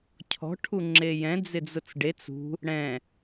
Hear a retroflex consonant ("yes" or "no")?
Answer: yes